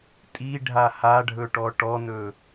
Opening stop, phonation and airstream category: ejective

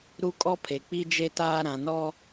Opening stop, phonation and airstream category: ejective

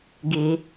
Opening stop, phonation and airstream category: plain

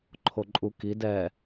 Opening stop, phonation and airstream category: click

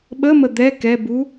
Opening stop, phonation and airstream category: implosive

